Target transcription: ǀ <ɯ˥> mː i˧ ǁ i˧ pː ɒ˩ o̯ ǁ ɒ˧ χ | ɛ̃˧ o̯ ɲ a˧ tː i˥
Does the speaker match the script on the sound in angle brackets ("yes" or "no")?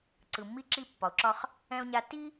no